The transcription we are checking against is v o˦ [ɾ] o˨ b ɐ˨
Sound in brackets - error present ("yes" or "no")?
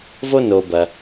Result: yes